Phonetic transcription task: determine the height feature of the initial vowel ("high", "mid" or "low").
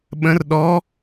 mid